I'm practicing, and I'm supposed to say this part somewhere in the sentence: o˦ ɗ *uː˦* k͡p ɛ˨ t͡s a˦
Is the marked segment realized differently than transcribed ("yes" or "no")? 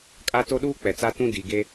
no